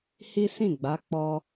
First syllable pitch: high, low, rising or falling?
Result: high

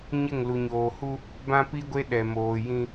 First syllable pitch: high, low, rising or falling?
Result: falling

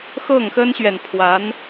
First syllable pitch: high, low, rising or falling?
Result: falling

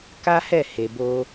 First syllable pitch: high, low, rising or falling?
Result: high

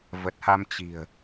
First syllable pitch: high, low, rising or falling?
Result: low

